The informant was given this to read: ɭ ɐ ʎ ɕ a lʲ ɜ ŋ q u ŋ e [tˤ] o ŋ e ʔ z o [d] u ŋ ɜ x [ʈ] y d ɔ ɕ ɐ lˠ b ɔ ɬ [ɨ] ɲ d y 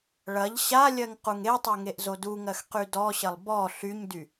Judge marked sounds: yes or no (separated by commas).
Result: yes, yes, no, no